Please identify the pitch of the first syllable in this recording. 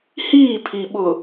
falling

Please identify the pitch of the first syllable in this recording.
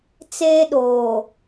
high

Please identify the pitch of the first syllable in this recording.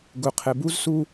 low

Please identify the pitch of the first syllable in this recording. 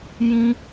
high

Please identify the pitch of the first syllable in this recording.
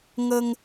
high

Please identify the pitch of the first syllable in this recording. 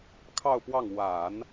falling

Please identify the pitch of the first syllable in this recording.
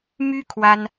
high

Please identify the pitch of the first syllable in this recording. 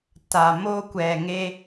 low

